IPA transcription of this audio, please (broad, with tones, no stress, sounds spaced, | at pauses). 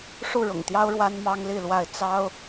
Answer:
ʂ u˥˨ ɻ ʊ̰˨˩ ŋ t̪ j ɑ˦ ʊ̯ ɻ w a˦ n m ɑ˦ ŋ l i˥˨ l w a˥˨ ɪ̯ t͡s ɑ˦ ʊ̯